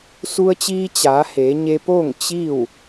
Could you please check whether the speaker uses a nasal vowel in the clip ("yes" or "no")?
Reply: no